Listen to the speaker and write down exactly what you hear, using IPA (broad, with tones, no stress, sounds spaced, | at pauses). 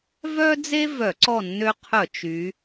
v œ˦ d͡z e˦ v œ˧˩˧ ǀ ɔ˦˨ nː ø˦ qʰ œ˧˩˧ t͡ʃ y˩˧